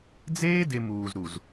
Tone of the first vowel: high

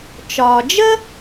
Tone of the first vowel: low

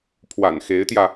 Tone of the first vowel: low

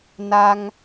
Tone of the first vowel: high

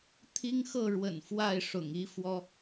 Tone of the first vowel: high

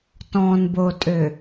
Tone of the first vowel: low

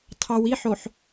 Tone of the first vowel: low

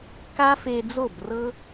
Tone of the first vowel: high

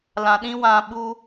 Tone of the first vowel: low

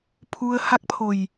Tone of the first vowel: low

